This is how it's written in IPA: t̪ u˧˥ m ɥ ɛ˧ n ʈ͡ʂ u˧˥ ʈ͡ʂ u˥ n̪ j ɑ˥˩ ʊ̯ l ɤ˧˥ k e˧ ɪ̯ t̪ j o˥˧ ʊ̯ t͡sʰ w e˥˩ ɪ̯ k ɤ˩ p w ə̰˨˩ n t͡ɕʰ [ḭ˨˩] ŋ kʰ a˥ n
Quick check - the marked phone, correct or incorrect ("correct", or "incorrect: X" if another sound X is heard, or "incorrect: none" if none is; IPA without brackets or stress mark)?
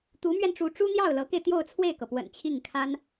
incorrect: i˥˩